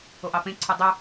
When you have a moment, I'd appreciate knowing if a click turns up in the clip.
yes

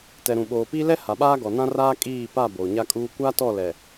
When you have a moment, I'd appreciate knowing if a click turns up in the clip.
no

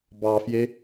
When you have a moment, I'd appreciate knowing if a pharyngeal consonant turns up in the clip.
no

